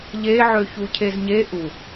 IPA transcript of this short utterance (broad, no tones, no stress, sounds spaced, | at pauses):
ʎ e ʕ ø ç u cʰ e z ɲ e ʔ u